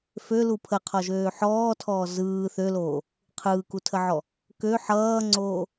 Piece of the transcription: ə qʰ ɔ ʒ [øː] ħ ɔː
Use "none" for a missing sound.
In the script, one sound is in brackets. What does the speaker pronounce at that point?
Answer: øː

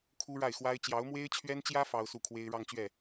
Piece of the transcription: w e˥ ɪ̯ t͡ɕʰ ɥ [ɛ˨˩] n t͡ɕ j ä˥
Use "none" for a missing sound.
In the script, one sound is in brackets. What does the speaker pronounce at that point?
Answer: ɛ˥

